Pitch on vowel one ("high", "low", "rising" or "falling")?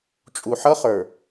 low